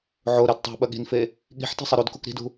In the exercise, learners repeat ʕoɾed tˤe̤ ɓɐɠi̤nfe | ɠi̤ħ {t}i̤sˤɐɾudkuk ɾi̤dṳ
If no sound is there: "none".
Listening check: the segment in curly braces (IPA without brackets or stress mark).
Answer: t